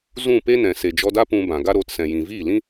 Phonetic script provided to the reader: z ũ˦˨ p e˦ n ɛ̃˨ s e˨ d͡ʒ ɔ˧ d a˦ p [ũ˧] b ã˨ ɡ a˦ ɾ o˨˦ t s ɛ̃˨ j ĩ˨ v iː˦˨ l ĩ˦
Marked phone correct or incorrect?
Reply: correct